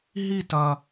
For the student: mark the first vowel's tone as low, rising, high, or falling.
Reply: falling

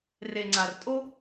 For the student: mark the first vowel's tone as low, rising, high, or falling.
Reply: low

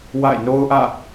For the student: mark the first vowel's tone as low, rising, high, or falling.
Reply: falling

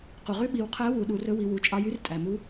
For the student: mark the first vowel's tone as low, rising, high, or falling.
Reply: low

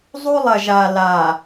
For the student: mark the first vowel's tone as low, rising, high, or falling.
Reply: high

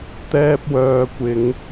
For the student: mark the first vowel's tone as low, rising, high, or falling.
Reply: high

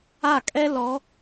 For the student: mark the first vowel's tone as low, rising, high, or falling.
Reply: falling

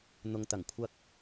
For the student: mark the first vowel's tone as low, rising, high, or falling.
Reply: low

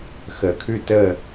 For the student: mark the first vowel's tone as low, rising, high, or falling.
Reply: low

